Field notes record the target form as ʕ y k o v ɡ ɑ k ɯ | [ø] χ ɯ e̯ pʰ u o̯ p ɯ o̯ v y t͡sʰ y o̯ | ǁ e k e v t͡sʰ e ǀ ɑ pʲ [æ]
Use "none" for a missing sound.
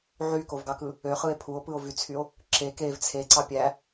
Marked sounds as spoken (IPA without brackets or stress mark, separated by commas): ø, æ